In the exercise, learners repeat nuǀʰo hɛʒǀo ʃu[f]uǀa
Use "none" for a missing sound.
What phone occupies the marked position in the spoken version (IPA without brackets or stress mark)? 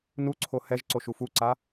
f